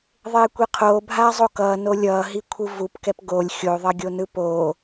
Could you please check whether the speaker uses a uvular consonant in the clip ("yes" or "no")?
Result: yes